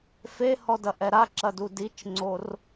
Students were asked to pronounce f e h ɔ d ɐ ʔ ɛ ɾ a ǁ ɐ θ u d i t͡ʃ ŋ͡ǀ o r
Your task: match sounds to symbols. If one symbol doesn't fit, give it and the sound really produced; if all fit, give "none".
θ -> d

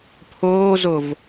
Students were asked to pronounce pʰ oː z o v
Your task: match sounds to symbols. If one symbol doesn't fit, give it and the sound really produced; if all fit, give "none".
none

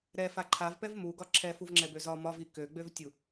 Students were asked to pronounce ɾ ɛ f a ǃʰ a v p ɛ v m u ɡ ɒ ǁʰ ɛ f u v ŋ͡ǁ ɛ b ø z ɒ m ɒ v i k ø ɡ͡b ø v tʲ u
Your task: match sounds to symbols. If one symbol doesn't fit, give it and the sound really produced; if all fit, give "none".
none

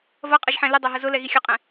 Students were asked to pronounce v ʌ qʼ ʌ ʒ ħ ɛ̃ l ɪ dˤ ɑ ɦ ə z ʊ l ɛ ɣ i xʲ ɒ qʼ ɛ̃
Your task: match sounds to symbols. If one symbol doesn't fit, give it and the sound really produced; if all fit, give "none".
none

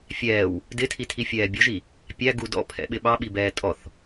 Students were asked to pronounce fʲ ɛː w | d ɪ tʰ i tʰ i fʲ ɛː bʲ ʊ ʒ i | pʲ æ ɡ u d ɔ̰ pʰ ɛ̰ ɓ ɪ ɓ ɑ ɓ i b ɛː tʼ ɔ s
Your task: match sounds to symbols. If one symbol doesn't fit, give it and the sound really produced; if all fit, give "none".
s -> θ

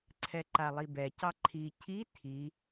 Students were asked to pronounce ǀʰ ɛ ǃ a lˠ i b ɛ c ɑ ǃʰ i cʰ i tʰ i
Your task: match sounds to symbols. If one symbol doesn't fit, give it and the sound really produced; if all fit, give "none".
none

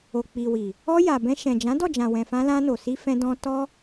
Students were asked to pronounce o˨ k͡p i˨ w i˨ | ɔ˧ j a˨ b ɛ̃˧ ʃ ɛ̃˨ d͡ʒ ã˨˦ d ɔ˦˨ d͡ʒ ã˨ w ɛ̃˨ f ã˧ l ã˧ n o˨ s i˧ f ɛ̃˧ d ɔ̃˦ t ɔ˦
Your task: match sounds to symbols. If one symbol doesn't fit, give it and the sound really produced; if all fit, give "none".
none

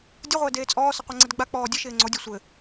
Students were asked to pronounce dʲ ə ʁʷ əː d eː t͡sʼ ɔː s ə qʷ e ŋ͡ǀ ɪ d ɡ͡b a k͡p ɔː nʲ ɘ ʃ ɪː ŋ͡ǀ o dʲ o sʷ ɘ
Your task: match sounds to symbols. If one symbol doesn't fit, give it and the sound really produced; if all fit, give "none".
nʲ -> dʲ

